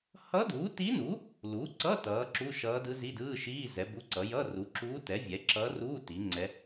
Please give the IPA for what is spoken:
hʌ˧˥duː˩˥ti˧˥nu˩˥ | lu˩˥ǀʌ˧˥˧ tʌː˩˥ǁu˧˥˧ʃʌː˧˥ dɯ˧˥zi˧˥˧dɯː˧˥˧ʃiː˧˥˧ zɛ˩˥bu˧˥˧ǀʌ˩˥ jʌ˧˥˧ru˩˥ǁuː˧˥tɛ˩˥ vʲɛ˩˥ǁʌː˧˥ruː˧˥˧ ti˩˥ŋ͡ǀɛ˧˥

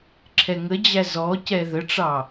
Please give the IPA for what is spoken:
ǁʰɛŋəd͡ʑæ zɔcɛ ðəʈ͡ʂɑ

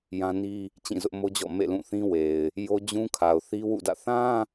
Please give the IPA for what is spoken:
jã˦ni˦ | t͡ɕĩ˦˨zʊ˦ʔmo˦d͡ʑɔ̰˦˨ mḛ˦˨lũ˦˨θĩ˦we˨ɪ̯ | jo˦ d͡ʑũ˦kʰa˨ʊ̯ θi˦wṵ˦˨dä̰˦˨ θã˦

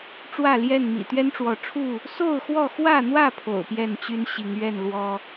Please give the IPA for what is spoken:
ʈ͡ʂwä˥˨ljɛ˥˨n mḭ˨˩t̪ɥɛ˦nʈ͡ʂwɔ˨˦ʈ͡ʂʰu˥˨ | so˥˨ʊ̯xwɔ˥˨ xwä˥˨n̪wä˥˨ pʰo̰˨˩ʊ̯pjɛ˥˨nt͡ɕy˦n ɕi˨˦ŋɥɛ˥˨n lwɔ˦

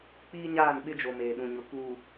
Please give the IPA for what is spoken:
k͡piː˦ɲaː˦˨nɓɪ˦d͡ʒo˨ meː˨ɗũ˨ɲʊ˨ kuː˨

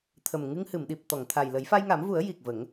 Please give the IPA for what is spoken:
t̪ʰə˨˩m ŋɨ˧ŋhɨ˨˩˨m ɗi˨˩p̚t̪ɔ˨˩˨ŋt̪ʰa˨˩j lə˨˩˦jfa˧jŋa˨˩˦mvu˨˩˦ə̯ ji˨˩k̚və˨˩˦ŋ

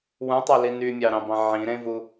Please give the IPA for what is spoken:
wũtˤæli nymʲɑɾɑ̃bɑ̃ ʕĩɾẽvu

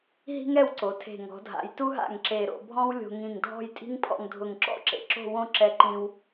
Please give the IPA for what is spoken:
ɦi̤˥ŋɛ˥˧wǀo˩˧tʰe̤˧˩ ŋɔ̤˩˧ dʱa̰˩˧jtu˥ɦa̰˧˩ŋ ǁe˧˩ ɾo̰˧bʱɔ̃˥w lʲo̤˧ŋĩ˧˩ŋ dʱɔ̤˥˧jtʼi̤˥ŋpʰɔ̰˧ŋ dʱʊ˧˩ŋǁɔ̰˥˧ǁḛ˧˩ ǁo̤˥˧wõ˥˧ ǁɛ˧ǃĩ˧w

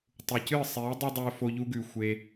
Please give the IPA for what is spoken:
tˤu˨cɨː˦˨ sˤeː˨˦ dˤɐ˦dˤɵː˧ fo˧ʎu˧ɡʉ˨ xʷe˧

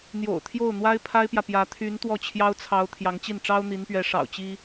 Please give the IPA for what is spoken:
n̪jo̰˨˩ʊ̯t̪ʰjo˥˩ʊ̯n̪wa˥ɪ̯ pʰa˥ɪ̯pjä˨pjä˧˥ t̪ʰy˧˥n t̪wɔ˥˩t͡ɕʰjɑ˥ʊ̯t͡sʰɑ˧˥ʊ̯ t̪ʰjɑ˧˥ŋt͡ɕi˥˩n ʈ͡ʂɑ˥ʊ̯n̪i˧˥npɥɛ˧˥ ʂɑ̰˨˩ʊ̯t͡ɕi˥

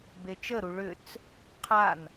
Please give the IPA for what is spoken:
bet͡ʃəɾu ɭʏt͡s | qʰan

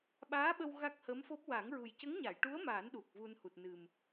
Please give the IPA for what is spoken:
ɓaː˧˥ɓə˧w ɣa˦˥k̚hə˧˥mfo˦˥p̚ wa˨˩˦ŋɹu˨˩j cə˧˥ŋɲa˨˩˨jʈu˧˥ə̯ maː˨˩˦n ɗu˨˩k̚vu˧nhu˨˩t̚nɨ˨˩m

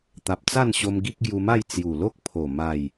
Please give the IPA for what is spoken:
t̪a˨p̚t͡sa˥˧nɕo˧m ɡi˦k̚ɡju˧ma˥˧j t͡sju˨˩lo˦k̚ pʰo˨˩ ma˨˩j

